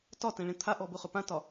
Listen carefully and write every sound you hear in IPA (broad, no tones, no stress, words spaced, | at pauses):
tɒtɛ̃ ɭẽt̪ʰaʔɔ bʊχɵpãtɒ